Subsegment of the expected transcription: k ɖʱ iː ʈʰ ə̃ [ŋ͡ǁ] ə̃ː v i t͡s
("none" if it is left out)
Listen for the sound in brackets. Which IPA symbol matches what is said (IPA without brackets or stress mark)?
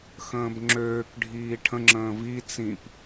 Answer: ŋ͡ǁ